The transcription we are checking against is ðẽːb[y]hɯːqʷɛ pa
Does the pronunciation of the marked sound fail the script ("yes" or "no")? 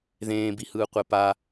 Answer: yes